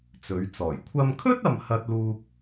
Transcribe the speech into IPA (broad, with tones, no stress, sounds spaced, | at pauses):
t͡s ɵ˨˥ ɥ t͡s ɔː˨˩ j kʷʰ ɐ˧ m kʰ ɵ˥ t̚ ɐ˥ m h ɐ˥ t̚ l uː˥ k̚